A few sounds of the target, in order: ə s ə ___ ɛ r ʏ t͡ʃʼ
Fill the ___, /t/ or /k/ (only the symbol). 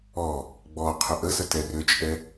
t